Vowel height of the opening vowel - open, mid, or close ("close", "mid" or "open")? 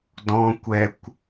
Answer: mid